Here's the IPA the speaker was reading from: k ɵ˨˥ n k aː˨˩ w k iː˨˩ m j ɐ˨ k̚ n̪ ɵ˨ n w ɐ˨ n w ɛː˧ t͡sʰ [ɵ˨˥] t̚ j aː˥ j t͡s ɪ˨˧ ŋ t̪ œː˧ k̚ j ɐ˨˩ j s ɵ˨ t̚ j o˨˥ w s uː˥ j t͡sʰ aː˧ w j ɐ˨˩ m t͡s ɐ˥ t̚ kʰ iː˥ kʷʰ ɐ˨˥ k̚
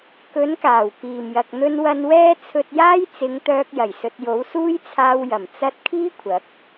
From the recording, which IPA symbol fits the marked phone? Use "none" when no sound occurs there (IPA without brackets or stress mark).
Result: ɵ˧